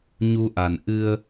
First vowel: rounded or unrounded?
rounded